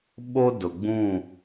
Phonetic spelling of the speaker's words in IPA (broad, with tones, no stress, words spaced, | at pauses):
ɓo˦dʊ˨ɡ͡bũ˦˨